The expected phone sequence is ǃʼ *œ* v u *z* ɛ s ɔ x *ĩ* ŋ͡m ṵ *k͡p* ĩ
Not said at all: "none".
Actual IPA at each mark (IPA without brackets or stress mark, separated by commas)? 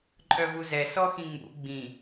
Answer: œ, z, ĩ, ɡ͡b